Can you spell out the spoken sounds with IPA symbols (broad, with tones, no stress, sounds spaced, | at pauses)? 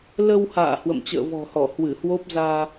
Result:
l ə˧ w h a̰ː˧˨ h w ə̰˧˨ m t͡ɕ ə̰ː˧˨ v ɔ̤˨˩ h ɔ˧˩ h w ɨ˧˩ h w o˦˥ p̚ z aː˧